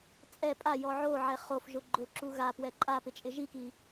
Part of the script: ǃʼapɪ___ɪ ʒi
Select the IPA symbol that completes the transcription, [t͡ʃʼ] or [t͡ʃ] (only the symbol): t͡ʃʼ